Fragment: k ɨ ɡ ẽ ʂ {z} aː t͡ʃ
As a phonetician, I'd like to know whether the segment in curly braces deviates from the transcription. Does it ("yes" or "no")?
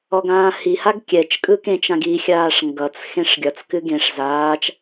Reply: no